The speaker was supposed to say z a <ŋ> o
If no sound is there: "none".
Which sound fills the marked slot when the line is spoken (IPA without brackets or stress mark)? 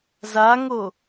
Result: ŋ